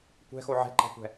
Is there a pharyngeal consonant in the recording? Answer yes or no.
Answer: yes